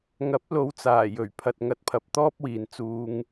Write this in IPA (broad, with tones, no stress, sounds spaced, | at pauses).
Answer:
ŋ ɐ˨˥ p̚ l o˨˧ w t͡s aː˨˩ j ɵ˨˩ ɥ pʰ ɐ˨ t̚ ŋ ɐ˨˥ t̚ pʰ ɐ˨ p̚ t̪ ɔː˥ p̚ w iː˨ n t͡s uː˧ ŋ